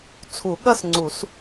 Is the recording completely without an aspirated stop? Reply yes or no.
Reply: no